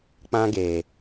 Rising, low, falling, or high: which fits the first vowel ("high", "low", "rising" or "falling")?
high